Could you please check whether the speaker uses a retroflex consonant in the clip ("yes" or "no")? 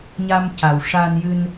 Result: yes